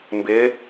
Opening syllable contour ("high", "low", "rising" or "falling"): rising